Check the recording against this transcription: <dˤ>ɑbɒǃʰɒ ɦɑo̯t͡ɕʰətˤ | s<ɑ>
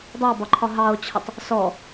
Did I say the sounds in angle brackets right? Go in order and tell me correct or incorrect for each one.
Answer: correct, incorrect

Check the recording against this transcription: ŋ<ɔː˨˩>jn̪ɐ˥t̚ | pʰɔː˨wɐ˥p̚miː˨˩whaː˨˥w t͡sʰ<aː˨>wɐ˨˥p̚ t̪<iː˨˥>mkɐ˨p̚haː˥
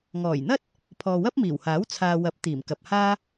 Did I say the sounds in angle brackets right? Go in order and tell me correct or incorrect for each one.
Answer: correct, correct, incorrect

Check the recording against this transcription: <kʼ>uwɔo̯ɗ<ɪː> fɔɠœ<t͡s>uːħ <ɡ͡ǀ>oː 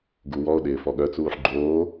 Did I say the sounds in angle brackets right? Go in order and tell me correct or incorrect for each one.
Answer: incorrect, correct, correct, incorrect

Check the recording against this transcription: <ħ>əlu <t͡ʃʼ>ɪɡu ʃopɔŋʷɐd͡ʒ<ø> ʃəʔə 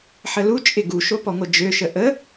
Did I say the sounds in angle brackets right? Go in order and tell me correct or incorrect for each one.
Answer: correct, correct, correct

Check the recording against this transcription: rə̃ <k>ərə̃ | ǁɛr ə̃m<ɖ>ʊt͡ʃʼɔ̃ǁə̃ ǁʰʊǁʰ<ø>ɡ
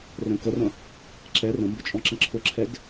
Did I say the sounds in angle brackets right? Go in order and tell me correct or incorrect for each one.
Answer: correct, incorrect, incorrect

